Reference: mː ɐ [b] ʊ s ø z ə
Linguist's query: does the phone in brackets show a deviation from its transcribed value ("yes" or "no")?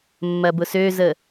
no